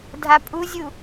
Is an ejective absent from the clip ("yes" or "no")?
no